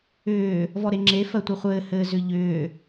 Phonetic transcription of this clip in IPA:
ʏː | v ɔ ɾ e ŋ͡ǁ e f ɜ tʷ ɘ χʷ ɘː h ɘː z ʏ ʎ ʏː

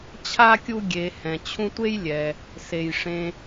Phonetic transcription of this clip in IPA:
t͡ɕʰ a˥ kʲ u˦ ɡʲ e˨ h ɛ̃˩ t͡ɕʰ ũ˦ tʷ e˥ j lʲ ɛ˩ | s e˩ j ʂ ẽ˨

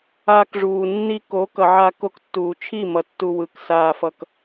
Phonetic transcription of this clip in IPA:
aː˧ k ʐ uː˨ nː i˦ k o˨˦ k ʌ˨ ʕ a˧ k o˧ k tː uː˨ t͡ʃʰ i˦˨ m ʌ˨ tː u˧ w ɯ˨˦ k s aː˧ f ʌ˧ k

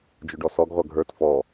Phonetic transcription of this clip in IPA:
d͡ʒ ʊ ɖ ɔ s ɔ ɡ ʁʷ ʌ ɡʱ ə˞ t f ɔ

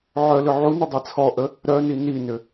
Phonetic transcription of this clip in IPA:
ʕ œ l ʏ ʕ u n ə dˤ e t͡sʰ ɔ ʔ ə | ɾ œ n i n i n ʏ

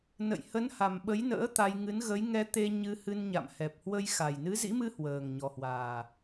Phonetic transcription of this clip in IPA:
n ə̰˧˨ j h ə˨˦ n h a˨˩ m ɓ ə˨˦ j n ə̰ː˧˥ t̪ a˧ j ŋ ɨ˨˦ n ɣ ə˨˦ j ŋ ɛ˧ t̪ e˧ ɲ ɨ˧ h ɨ˧ n ɲ a̰˧˨ m h ɛ˨˩ p̚ h w ə˧ j x a˨˩ j n ɨ˨˦ z ḭ˧˥ m ɨ˧ h w əː˨˩ ŋ ɲ ɔ˨˩ h w aː˨˩

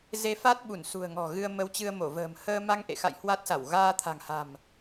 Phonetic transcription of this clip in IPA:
z e˧ f a˦˥ t̚ ɓ u˧˩ n s ṳ˨˩ ə̯ ŋ ɔ̤˨˩ ɣ ɨ˧ ə̯ m ə˧ w t͡ɕ ɨ˧ ə̯ m o˧˩ v ə̤ː˨˩ m h əː˧ m a˧ ŋ ʔ ḛ˧˨ x a̰˧˨ j h w a˦˥ t̚ s a˧˩ w ɣ aː˧ t̪ʰ a̤˨˩ ŋ h a̤˨˩ m

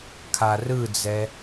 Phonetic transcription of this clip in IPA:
kʰ a r ɯ d͡z ɛ

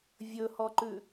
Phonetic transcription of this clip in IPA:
vʲ ɵ h ɔ ǃ ʉ

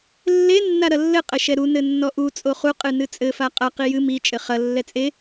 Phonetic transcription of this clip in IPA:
lː e nː a ɾ ɐ lː ɘ qʼ ɘ ʃ ɛ ɾ u n ɘ nː ɔ ʔ u t͡sʼ o χ u qʼ ɨ n ɨ t͡sʼ ɘ f a qʼ ɐ q i j ɨ m i t͡ʃʼ ɘ χ ɐ lː ɛ t͡sʼ e

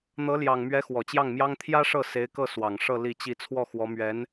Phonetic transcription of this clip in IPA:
n̪ ɤ˧˥ l j ɑ˨˩ ŋ m ɥ ɛ˧˥ x w ɔ˨˩ t͡ɕ j ɑ˥˩ ŋ m j ɑ˥ ŋ t̪ʰ j ä˥ ʂ ɤ˥˩ s e˧˥ ɪ̯ k ɤ˥˩ s w ɑ˨˩ ŋ ʂ ɤ˥˧ l i˥˧ t͡ɕ i˥˧ t͡sʰ w ɔ˥˩ x w ɔ˧˥ m ɥ ɛ˧˥ n

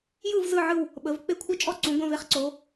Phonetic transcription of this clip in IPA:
j ɯ˦˨ v z ɯ˦˨ ʕ ɯ˦˨ w | ɓ ə˩˧ v k͡p e˦˨ kʷʰ ɯ˦˨ t͡ʃʼ ɔ˦˨ ǀ ũ˩˧ ɡʷ ɐ̃˦˨ v e˦˨ χ ǀ o˩˧

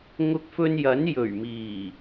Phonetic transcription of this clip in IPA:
ŋ ʊ˧ k̚ f ɵ˧ n j ɐ˨˥ n j ɵ˨˩ ɥ m iː˨˩

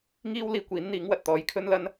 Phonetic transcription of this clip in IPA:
ŋ iː˥ w l iː˧ kʷ iː˨˥ n n̪ iː˨˥ ŋ w ɐ˨ t̚ t̪ ɔː˨˥ j kʰ ɵ˥ n l ɐ˥ n

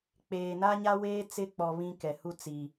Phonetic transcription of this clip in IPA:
k͡p eː˨ n a˦ ɲ a˦ w eː˦ t͡s ɪ˦˨ k͡p ɔ˨ β ĩ˦ k ɛ˨ h u˦ t͡s i˨

